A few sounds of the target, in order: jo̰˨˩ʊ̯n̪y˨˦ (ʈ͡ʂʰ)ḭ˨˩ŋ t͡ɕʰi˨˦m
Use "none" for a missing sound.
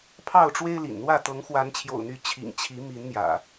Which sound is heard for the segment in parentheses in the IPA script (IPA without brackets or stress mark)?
t͡ɕʰ